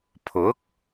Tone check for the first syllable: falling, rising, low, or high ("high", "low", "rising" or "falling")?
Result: rising